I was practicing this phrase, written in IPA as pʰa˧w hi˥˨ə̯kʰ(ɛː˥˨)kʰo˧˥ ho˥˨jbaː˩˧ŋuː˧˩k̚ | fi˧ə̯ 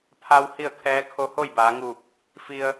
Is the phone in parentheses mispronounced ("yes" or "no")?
yes